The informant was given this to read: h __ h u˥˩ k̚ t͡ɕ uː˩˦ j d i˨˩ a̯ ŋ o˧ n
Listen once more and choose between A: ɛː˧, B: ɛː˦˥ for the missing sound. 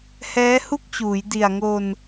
B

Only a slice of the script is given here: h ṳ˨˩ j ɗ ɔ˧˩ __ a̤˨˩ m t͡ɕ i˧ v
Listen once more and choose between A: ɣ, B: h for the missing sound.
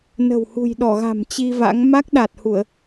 A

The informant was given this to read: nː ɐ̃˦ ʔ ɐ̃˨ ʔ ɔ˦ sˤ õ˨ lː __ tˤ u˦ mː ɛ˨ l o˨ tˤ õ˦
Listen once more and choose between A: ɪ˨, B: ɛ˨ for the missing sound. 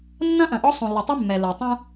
A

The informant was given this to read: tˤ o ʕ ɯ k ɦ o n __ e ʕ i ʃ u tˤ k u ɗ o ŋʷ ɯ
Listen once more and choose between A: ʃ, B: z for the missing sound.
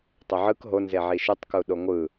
B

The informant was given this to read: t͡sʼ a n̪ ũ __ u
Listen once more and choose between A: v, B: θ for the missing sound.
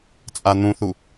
B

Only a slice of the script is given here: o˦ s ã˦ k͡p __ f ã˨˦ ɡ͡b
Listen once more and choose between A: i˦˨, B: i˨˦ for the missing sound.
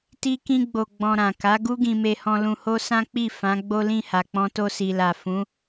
A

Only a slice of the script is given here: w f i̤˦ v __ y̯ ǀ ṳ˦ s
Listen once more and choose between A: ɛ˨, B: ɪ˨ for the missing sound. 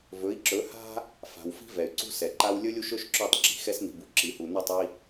A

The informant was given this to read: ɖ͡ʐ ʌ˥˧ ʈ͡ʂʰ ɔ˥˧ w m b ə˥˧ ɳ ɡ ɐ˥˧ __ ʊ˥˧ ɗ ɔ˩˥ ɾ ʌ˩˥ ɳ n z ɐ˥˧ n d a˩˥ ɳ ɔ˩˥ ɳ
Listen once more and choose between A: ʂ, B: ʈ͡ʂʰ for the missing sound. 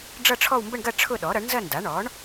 B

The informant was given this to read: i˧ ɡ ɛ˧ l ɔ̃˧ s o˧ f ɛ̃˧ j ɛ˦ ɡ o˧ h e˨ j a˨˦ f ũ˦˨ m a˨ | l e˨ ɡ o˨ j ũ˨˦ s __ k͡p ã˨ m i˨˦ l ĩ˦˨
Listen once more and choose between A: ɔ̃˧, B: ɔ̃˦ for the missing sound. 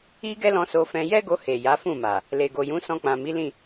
A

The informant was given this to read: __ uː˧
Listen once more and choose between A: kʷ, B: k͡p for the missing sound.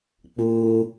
B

